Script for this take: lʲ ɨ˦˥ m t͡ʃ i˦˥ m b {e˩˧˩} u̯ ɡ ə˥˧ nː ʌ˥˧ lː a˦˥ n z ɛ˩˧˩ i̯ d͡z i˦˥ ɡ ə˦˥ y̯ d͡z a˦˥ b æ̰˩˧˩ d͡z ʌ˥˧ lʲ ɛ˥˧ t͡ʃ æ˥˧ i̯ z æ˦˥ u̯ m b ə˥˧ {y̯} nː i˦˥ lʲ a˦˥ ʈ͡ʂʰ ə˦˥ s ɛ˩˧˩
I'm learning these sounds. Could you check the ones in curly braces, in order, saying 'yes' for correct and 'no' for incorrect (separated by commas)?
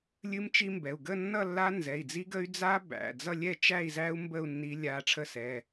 no, no